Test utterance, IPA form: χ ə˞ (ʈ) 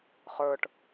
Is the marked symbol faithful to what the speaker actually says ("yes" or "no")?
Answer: yes